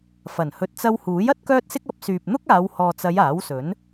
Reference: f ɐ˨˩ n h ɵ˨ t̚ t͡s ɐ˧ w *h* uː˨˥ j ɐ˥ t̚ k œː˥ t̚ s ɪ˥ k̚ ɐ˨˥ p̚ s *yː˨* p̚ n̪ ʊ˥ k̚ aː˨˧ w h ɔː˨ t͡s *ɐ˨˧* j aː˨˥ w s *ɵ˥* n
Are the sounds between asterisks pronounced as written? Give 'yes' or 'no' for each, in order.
yes, yes, yes, no

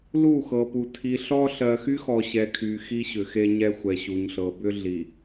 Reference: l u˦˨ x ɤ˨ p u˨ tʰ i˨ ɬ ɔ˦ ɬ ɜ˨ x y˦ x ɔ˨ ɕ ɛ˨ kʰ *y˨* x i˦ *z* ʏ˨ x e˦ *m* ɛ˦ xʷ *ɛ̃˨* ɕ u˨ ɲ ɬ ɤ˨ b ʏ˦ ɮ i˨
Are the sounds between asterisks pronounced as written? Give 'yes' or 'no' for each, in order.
yes, no, no, no

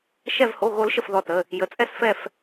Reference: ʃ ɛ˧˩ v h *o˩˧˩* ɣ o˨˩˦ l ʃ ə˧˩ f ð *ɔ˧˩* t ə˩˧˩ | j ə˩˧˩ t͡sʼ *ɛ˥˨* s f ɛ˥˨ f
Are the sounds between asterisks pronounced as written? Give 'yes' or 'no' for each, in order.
yes, yes, yes

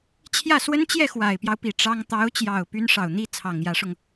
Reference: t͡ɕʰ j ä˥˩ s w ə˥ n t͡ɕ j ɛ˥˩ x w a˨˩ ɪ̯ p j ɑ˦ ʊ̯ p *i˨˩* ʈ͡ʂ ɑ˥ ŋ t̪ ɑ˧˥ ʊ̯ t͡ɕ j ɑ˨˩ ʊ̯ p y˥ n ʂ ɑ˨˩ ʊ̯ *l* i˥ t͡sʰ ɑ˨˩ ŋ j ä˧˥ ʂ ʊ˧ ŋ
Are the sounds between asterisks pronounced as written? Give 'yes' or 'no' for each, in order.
yes, no

